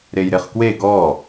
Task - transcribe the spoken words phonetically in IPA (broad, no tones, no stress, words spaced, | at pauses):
ɾejɾeχkwe ɡɔ